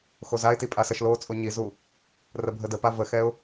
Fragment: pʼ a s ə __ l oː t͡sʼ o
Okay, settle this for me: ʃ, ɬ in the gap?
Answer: ʃ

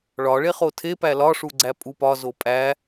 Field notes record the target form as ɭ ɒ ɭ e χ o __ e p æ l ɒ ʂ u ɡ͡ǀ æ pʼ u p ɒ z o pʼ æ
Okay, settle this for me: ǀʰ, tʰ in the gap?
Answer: tʰ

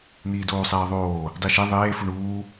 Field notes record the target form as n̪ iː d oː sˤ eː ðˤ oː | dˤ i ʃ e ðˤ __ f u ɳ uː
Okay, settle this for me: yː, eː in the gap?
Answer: eː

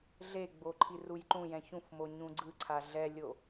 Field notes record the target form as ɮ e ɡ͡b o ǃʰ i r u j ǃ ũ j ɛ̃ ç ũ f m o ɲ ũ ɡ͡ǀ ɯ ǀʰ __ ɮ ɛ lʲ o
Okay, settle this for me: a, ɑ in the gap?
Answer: a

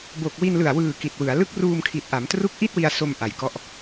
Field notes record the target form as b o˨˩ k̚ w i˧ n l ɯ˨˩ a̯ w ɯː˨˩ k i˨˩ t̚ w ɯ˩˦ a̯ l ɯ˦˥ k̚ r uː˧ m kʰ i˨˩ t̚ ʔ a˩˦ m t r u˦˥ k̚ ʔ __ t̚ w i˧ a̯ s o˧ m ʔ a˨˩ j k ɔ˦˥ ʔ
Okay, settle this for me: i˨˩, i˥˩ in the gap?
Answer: i˥˩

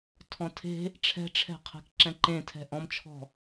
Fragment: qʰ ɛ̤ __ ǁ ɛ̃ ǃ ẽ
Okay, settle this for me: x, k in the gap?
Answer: k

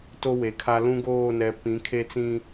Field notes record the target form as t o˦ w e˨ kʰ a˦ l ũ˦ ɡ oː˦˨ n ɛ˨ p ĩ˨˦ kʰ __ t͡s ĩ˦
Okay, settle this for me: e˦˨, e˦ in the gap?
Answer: e˦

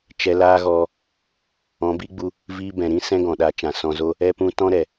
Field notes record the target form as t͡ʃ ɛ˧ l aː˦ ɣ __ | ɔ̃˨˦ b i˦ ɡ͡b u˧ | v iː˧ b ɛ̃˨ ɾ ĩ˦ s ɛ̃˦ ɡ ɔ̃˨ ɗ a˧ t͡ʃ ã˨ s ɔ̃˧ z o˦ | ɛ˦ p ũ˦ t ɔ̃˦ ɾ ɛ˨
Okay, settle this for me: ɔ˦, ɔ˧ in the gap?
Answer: ɔ˧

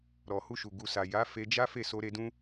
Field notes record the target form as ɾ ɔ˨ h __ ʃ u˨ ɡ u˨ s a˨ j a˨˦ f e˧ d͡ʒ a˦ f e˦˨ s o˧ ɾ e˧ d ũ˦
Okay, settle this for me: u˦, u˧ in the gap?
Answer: u˧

